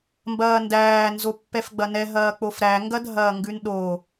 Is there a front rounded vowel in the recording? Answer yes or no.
no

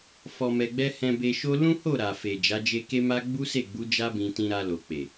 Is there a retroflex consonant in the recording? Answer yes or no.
no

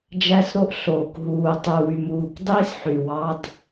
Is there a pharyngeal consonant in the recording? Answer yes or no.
yes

